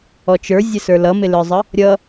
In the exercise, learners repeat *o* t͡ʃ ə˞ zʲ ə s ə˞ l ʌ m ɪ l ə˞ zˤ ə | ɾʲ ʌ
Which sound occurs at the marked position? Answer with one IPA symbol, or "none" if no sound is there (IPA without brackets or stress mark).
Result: ɔ